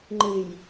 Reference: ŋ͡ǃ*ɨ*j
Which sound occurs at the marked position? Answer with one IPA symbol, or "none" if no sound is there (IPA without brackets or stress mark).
ɨ